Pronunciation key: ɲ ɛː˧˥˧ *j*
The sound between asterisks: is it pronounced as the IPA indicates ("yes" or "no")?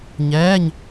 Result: no